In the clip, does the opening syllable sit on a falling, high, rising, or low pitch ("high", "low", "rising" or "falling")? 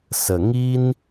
low